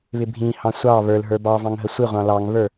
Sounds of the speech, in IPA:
βɪbʱĩhɑ̃ sʷɑ βə˞l ɦə˞bɑvɑ̃ŋ ɦəsʷɪʁʷɑ̃ lɑŋβə˞

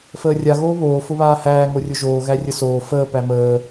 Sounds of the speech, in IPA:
fəːrʲa ɣoːβoː fʊβaːhæː ŋorʲʊʒoː ɣærʲəsoː fəː pæməː

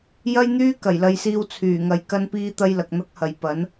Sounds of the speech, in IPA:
jɐ˥jn̪yː˥ kɐ˨˩jlɐ˧jsiː˧w t͡sʰyː˨˩ŋɐ˨˥j kɐ˥npiː˥t̪ɐ˥jlɐ˨k̚ n̪ɐ˥k̚hɐ˨j pɐ˨˥n

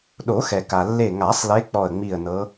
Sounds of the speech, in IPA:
ɗo˨˩˦xɛ˩ka˩ lːe˧˩ŋa˨˩˦sˤle˨˦ k͡pɔ˧˩ə̯ŋ͡mi˧˩ə̯nɤ˨˦

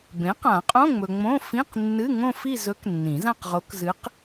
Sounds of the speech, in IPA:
bẽ˩˥qã˨˩˦qʼõ˧˥˧ŋ͡mɵ˨ ŋ͡mõ˧˥˧ fĩ˧˥˧qnːɨ˧˥˧ ŋõ˥˧fi˥˧zɵ˧˥k nːĩ˨˩˦zã˥˧qʁo˧˥k zɨ˧˥q

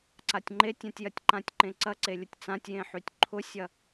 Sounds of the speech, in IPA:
ǀatʲŋ͡ǃetʲãtʲjɐtʲ ǃãtʲǃẽǀɐǀe lʲətʲt͡sãtʲjẽħytʲ ǃʰʊsʲɐ

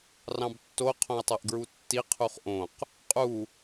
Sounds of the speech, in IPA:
rɑ̃btːo qʰõi̯tˤeʔɡɹutːi qʰuχʔõq | qʼu

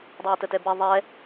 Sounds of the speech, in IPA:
dˤɘe̯tətɛbɛ ðˤɛ

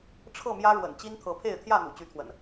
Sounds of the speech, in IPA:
ʈ͡ʂʰɤ˥˨mjä˦ɻwə̰˨˩n t͡ɕi˦nt̪ʰɤ˨˦pʰe˥˨ɪ̯ t̪ʰjä˥˨n̪ṵ˨˩ t͡ɕy˨˦t̪ʰwə̰˨˩n

